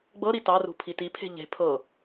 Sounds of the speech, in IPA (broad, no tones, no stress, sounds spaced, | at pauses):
ɡ͡b ɤ ɾ i t ɑ r ṳ pʰ i t i pʰ e̤ ʎ e̤ pʰ ɤ